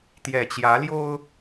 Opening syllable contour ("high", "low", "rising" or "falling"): low